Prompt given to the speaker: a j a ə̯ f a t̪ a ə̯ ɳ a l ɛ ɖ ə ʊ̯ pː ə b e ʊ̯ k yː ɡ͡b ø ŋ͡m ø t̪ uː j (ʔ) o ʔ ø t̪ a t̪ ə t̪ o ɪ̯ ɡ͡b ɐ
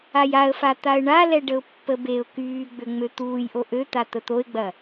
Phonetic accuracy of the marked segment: correct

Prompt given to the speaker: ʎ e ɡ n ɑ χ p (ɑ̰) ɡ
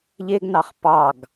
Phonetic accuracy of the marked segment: incorrect: ɑ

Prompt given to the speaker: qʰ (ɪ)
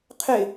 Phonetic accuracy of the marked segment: correct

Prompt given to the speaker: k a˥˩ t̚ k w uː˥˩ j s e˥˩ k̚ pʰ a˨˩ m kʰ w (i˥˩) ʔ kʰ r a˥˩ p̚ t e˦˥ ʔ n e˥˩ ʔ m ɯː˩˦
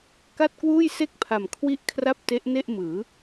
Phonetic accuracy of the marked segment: incorrect: i˦˥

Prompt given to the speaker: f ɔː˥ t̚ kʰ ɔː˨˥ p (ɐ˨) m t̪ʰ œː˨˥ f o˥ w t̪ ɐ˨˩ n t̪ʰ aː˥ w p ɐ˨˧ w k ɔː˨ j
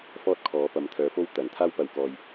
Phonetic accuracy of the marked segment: correct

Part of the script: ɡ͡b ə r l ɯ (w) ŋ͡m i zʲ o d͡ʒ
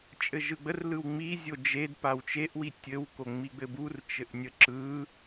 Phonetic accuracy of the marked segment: correct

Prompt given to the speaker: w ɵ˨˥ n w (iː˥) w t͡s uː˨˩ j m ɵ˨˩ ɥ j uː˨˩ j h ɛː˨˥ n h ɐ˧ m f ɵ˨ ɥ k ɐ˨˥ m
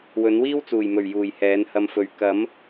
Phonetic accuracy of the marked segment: correct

